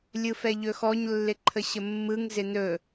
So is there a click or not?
yes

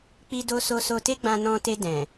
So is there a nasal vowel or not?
yes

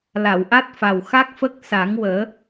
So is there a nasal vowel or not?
no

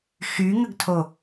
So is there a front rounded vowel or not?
yes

